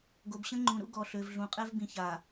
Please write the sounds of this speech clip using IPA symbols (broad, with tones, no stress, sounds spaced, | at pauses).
ɡ o˨ b ɕ ə̃˦ ŋ͡ǃ ũ˨ ɾ ṵ˦ ɡ ɔ˨ ɬ ø˨ v ɮ ũ˨ qʼ ɛ˦ v b ĩ˨ ç a˨